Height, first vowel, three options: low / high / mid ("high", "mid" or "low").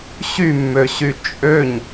high